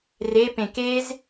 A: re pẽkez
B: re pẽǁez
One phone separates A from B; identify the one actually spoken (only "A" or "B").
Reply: A